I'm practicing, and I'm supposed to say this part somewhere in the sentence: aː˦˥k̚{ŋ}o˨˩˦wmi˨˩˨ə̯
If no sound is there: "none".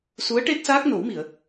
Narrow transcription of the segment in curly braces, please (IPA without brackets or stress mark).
n